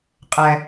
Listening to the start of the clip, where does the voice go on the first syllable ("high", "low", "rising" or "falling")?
low